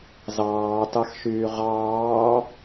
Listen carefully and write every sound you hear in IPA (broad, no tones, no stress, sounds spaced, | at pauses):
z ɑː t ɑ x ʃ yː ʁ ɑː